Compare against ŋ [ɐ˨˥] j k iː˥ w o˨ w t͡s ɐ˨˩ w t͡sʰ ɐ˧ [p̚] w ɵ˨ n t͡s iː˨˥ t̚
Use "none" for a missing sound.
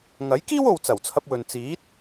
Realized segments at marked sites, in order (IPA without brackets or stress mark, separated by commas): ɐ˨˥, p̚